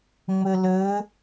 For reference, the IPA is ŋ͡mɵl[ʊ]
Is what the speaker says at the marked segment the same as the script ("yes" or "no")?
no